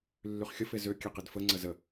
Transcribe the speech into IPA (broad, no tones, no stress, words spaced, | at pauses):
lːyχxʲəfe zøkʲe qidfəŋ͡ǀə zə